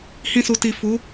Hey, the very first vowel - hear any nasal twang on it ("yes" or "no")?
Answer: yes